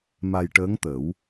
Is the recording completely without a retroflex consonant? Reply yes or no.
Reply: no